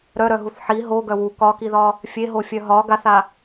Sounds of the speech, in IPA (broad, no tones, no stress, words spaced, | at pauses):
ɾœɾœɦuθ ħi ɦoɡœ wu kɒkiðɒ | fʲeɦofʲœ ɦɒ ɡaθa